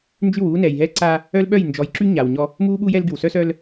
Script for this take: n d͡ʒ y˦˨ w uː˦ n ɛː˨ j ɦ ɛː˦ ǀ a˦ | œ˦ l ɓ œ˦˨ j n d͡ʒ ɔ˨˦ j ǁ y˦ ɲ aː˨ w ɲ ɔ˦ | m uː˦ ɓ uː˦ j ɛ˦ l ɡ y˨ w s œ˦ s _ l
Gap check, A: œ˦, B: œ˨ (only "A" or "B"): A